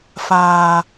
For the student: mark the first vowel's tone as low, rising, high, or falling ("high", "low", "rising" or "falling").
low